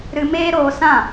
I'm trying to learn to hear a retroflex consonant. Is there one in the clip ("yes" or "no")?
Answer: no